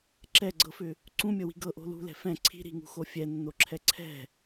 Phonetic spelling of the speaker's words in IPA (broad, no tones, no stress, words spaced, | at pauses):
ǁɛɡ͡ǀɤfʏ | ǀũmʲɤwi̤ ɡɤʔo̤ lṳlɛ̤ fɛ̃ ǀʰi̤ ɾi̤ŋṳxo fʲɛnːoǁʰɛ ǀʰɛ̤